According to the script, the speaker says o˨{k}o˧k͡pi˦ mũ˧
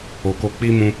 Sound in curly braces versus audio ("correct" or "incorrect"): correct